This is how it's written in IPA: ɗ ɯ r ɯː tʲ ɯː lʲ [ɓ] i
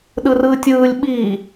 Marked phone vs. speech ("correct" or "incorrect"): correct